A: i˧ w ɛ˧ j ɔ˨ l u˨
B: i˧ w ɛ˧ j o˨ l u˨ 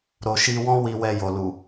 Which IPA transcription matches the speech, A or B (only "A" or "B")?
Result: B